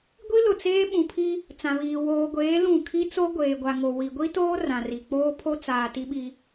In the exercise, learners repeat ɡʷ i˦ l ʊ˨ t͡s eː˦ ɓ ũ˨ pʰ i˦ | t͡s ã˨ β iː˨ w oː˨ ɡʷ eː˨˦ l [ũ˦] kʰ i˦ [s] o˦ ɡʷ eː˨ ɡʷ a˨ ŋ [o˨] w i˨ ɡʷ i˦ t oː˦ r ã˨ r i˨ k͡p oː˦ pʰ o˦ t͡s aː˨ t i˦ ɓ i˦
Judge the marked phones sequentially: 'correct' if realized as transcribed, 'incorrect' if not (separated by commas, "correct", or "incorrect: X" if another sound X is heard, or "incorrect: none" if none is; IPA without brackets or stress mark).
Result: incorrect: ũ˦˨, incorrect: t͡s, correct